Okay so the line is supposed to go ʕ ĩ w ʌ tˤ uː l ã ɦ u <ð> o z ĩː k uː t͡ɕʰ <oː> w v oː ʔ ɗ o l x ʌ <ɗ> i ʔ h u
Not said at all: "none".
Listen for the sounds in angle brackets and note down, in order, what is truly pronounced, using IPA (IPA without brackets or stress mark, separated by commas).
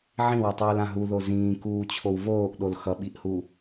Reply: ð, o, ɓ